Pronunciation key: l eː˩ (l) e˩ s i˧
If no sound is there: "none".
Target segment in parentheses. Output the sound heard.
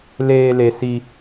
l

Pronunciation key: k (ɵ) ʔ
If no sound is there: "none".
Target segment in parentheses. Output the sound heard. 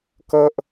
ɤ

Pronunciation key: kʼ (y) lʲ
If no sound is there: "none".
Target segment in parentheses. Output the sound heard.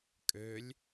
ø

